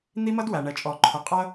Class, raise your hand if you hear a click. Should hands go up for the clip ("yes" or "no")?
yes